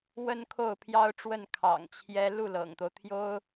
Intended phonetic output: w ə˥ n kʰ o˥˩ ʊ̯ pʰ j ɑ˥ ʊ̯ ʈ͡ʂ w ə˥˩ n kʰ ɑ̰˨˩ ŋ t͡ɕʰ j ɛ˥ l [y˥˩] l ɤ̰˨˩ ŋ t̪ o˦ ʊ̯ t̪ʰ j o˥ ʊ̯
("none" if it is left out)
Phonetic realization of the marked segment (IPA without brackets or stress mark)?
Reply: u˥˩